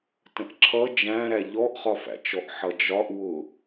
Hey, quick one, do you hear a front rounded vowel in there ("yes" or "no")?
no